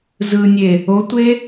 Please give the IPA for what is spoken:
z ɯ nʲ e | o tʷ e

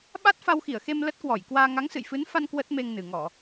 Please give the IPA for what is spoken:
ɓ a˦˥ t̚ f a˧ w x i˧˩ ə̯ x e˧ m l ə˦˥ t̚ k w ɔ˧˩ j k w aː˧ ŋ a˨˦ ŋ s ɨ̰˧˨ j f ɨ˨˦ n f a˧ n k w ə˦˥ t̚ m e˧ ŋ n ɨ˨˩ ŋ ɔ˧˩˨

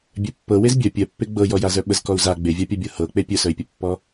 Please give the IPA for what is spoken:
bʲ œ pː ɤ w e z bʲ œ pʲ œ pː e ɡ͡b ɤ j ɔ j a z œ ɓ ə z k ɔ u̯ z a ɡ͡b e vʲ a pʲ a bʲ ɤ h ɤ k͡p e pʲ œ s œ i̯ pʲ ə pː ɔ

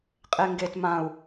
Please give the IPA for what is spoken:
qʼ e ŋ ɡ e t m ã u̯

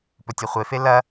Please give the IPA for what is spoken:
p ɵ tʲ e χʷ e f e l ɐ

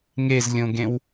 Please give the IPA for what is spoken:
ŋ e z lʲ õ ɡ ẽ w

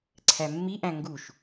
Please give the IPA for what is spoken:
ǀʰ æ mː i ʔ æ̃ ŋ ɡ u ʃ

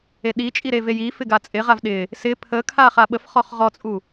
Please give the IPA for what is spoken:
e ɗ i t͡ʃʼ i ɾ e v e j i f ɪ ɡ a t͡sʼ ɪ ʁ a v ɗ ɪ | s ɪ pʰ ə kʰ a χ a ɓ ə f χ ɔ χ ʁ ɔ t͡sʼ u

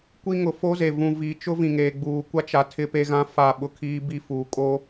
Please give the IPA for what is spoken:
kʷ i˦ ŋ ʊ˨ f o˦ z e˨ v ũ˨ v i˨ t͡ʃ ʊ˦ v ĩ˨ ŋ eː˨ ɡ͡b uː˨ kʷ a˦ t͡ʃ a˨ tʰ ɪ˦ p e˦ ɣ ã˦ f a˦˨ ɓ ʊ˦ kʰ iː˦ b i˦ f uː˨ kʼ o˦

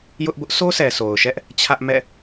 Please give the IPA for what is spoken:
j ʊ˦ ʔ b ʊ˦ ʔ sʰ o˦ s ɛ˨ sʰ o˨ ʊ̯ ʃ ɛ˦ ʔ | t͡ɕʰ ä˦ ʔ m ɛ̰˦˨

